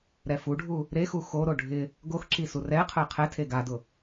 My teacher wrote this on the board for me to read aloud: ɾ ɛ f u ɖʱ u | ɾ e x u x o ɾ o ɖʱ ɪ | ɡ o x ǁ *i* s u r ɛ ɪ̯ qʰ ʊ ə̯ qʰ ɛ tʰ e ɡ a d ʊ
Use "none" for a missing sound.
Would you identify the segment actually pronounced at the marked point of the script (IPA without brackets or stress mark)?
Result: i